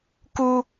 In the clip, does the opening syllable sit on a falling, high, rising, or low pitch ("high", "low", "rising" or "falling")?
high